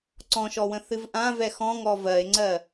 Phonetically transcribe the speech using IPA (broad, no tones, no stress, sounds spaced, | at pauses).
ǀ ɔ̃ ʃ ɔ w ə̃ θ ɨ v ʔ ã v ɛ x ɔ̃ ŋ ɔ v ɜ e̯ ŋ͡ǀ ɜ